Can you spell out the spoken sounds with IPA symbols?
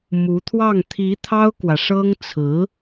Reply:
mu˧˥t̪ʰwɑ˥˩ŋ t̪ʰi˧˥ t̪ʰɑ˥ʊ̯kwä˨ʂɤ˥ŋ t͡sʰɹ̩˧˥

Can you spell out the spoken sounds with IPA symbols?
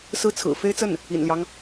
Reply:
sɹ̩˥˩t͡sʰɹ̩˨˩ fe˥ɪ̯t͡sə˥˩n | ḭ˨˩nljɑ˦ŋ

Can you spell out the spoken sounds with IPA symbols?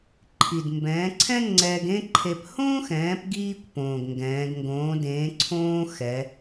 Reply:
ǃʰi˩dmbɛ̃ː˩˧ǀʰɛ̃˥ ŋ͡ǀɛː˧ɡẽ˥ǃʰe˧p hõː˥xɛ̃ː˩˧pɡiː˧kʷ põː˩ɡŋɡɛ̃ː˩˧ɡ ŋɡõː˩˧dẽː˩˧ ǀʰõː˥ xɛ˩˧

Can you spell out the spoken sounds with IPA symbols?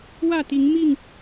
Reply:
wä˥˨t̪i˨˦ŋmi˥˨ŋ

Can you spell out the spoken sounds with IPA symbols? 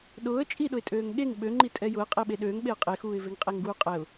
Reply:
ɗʊːə̯ t͡ʃʼiɗʊɪ̯tʼøːŋ ɠeŋ ɓøŋ͡ǃi tʼɛjʊə̯ qʼeɓeɗøːŋ ɓeə̯qʼexuːɪ̯ veŋqʼeŋɡuːqʼɛʊ̯

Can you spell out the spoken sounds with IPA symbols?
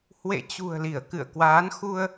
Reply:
hwḛ˧˨t͡ɕṳ˨˩ə̯ li˧˩ə̯kɨ̰˧˨ə̯ kwaː˨˦n xu˧ə̯

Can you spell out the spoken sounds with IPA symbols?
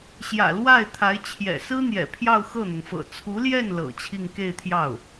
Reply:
ɕjä̰˨˩lwa˥˩ɪ̯t̪ʰa˧˥ɪ̯t͡ɕʰjɛ̰˨˩ sɹ̩˥n̪jɛ̰˨˩ pʰjɑ˥˧ʊ̯xɤ˥˩n̪ʊ˩ŋfɤ̰˨˩ t͡sʰu˧˥ljɛ˥˩n lɤ̰˨˩t͡ɕʰi˥˧ŋ ke˥˧ɪ̯t̪ʰjɑ˥˩ʊ̯

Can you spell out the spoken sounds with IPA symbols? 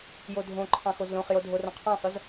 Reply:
jodʱõ ǃʰɑ̃xozlõχjo dʱorõqʰɑ̃sˤʊz

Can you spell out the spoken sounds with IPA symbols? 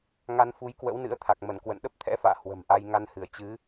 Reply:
ŋa˧nfu˨˦jkwə̰˧˥wnɨ̰˧˥ə̯ t̪ʰa˨˩k̚mə˧˩nkwə̰˧˨n ɗə˦˥p̚t̪ʰɛ̰˧˥fa̰ː˧˨ hwə̤˨˩mʔa˧j ŋa˧nhɨ˧˩ə̯ t͡ɕɨ˨˦

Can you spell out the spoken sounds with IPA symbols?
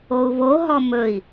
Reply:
ou̯βoɦɔ mɵi̯

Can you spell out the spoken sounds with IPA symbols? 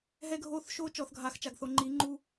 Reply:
ɦɛ˦ɡʱoː˦˨θ ʃoː˦t͡ʃɔ˨θɡʱaː˨xt͡ʃa˨ɡ θo˨ŋ͡ǃiː˨˦ ŋ͡ǃu˦

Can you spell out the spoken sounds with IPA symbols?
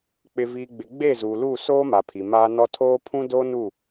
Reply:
k͡pɪ˨viː˨ɡ͡bɪ˨ ɡ͡be˦˨zu˨lu˦˨ soː˦ma˨ pʰi˨maː˦nɔ˦ tʰoː˦ pʰũ˦doː˦ nu˦˨

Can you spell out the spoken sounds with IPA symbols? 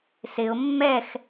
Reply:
sɪʊ̯ mːɛx

